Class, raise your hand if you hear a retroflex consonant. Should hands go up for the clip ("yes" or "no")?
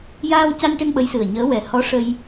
yes